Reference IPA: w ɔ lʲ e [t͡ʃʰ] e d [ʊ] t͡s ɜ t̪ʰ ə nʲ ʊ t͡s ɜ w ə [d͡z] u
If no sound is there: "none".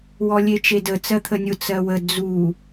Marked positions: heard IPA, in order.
t͡ʃ, ə, d͡z

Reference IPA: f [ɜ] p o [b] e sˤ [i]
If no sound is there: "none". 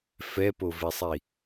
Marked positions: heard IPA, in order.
ɛ, v, i

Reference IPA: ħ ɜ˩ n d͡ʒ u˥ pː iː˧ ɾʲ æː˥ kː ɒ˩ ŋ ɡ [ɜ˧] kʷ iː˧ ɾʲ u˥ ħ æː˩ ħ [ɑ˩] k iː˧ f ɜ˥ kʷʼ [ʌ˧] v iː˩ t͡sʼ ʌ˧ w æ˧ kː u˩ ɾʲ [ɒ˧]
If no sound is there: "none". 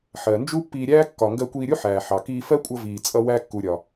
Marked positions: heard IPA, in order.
ɜ˧, ɑ˩, ʌ˧, ɒ˩

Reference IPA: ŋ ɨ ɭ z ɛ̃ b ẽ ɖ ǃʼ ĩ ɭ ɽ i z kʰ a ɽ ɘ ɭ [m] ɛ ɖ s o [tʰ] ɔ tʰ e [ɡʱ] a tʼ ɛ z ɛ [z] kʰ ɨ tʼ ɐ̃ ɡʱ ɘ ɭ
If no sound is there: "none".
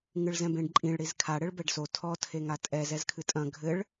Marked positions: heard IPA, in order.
b, tʰ, ŋ, z

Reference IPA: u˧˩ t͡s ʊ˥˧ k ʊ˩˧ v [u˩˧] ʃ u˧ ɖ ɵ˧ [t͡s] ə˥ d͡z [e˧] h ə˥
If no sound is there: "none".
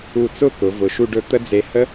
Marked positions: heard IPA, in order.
ʊ˩˧, t̪, e˧

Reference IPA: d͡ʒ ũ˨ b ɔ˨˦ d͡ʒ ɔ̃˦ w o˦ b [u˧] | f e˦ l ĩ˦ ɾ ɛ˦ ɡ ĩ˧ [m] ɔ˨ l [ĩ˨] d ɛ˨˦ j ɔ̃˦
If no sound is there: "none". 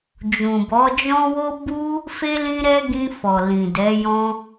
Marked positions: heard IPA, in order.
u˦, f, ĩ˨

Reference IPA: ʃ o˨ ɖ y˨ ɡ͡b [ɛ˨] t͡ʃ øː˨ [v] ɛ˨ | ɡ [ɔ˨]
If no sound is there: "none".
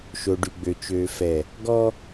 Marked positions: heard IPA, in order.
ø˨, f, ɔ˦

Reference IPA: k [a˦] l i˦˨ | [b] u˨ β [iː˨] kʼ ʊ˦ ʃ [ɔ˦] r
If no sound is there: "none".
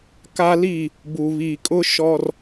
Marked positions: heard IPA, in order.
a˦, b, iː˨, ɔ˦

